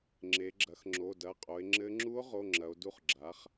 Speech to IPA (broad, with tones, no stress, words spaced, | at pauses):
ŋ͡ǁe˩˧ɡ͡ǁɐ˩˧x ŋ͡ǁo˩˧˩dɐ˩˧˩qʼo˩˧e̯ ŋ͡ǁɘ˧˥ ŋ͡ǁu˧˥o̯ʁo˩˧˩ ŋ͡ǁɐ˩˧o̯du˦˨χɡ͡ǁa˩˥χ